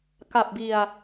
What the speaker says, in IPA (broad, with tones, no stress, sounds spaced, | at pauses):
k a˨˩ p̚ b i˨˩ a̯